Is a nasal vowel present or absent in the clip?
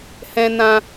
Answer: present